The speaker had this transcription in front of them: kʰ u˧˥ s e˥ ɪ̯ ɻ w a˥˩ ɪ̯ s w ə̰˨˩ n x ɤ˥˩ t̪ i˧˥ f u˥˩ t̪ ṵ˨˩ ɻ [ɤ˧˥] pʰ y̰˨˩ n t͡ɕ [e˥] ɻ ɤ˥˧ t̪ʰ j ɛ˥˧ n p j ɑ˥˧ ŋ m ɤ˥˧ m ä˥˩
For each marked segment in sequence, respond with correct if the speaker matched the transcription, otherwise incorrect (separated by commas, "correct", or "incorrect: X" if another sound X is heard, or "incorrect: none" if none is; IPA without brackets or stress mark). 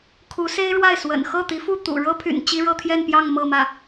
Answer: incorrect: ɤ˥, incorrect: i˥